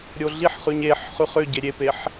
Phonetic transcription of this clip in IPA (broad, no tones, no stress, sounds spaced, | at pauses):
ɾʲ o ɮ i ħ χ ʉ ɲ e ħ χ ʉ χ ʏ ɟ e ɾʲ e p e ħ